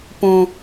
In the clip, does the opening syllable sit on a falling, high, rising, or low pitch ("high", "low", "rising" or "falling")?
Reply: high